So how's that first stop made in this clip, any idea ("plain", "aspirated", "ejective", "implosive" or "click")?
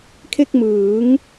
aspirated